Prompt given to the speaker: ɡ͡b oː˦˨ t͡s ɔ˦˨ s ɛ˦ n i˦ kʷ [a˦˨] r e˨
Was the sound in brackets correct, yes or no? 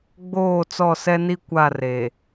yes